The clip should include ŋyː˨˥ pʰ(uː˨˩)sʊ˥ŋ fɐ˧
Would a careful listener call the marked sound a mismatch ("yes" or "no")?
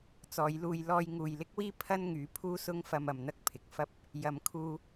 yes